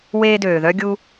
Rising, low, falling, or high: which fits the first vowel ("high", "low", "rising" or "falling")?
high